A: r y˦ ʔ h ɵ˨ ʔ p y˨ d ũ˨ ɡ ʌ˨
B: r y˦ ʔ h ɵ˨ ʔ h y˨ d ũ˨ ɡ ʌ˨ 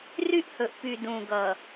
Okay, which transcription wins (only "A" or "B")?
A